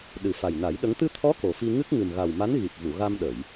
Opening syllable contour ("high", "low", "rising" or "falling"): low